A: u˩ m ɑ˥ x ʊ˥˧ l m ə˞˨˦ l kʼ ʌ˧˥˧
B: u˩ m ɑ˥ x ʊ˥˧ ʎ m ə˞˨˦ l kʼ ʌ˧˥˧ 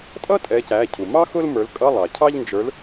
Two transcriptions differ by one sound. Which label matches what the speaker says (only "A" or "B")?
A